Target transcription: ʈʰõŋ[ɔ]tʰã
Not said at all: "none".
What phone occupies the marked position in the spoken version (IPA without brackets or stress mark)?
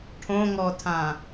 ɔ